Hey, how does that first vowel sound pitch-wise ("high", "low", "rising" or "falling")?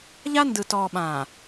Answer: high